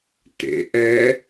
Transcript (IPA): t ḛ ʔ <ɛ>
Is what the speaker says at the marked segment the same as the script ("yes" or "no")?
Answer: yes